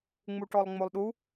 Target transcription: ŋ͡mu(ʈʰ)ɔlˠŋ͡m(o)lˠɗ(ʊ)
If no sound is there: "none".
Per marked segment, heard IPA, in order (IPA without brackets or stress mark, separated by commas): ʈ, o, u